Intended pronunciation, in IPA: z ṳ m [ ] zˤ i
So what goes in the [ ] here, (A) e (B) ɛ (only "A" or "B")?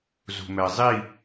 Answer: B